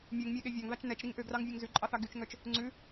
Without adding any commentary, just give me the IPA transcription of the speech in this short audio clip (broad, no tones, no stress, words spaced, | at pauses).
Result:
mʲʉŋmʲæɠe vʲɑŋðɑt͡ʃ nɛt͡ʃɾiŋ ʔøɡrɑŋvʲoŋ zʉǃʼɑθɑ ɡyt͡ʃŋœt͡ʃ | ŋ͡ǀʉ